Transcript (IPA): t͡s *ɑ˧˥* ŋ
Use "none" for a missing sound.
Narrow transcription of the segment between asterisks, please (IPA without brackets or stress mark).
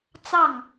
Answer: ɑ˥˩